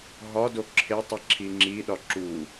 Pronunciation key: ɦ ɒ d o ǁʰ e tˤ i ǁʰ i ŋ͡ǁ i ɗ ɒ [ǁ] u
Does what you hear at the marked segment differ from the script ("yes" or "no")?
no